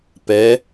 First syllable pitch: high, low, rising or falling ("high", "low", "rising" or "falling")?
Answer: rising